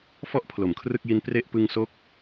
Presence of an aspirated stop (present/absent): present